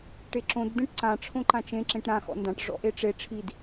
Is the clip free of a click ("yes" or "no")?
no